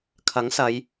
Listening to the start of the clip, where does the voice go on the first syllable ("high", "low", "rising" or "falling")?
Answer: rising